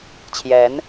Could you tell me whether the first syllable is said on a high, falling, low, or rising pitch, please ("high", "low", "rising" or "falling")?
rising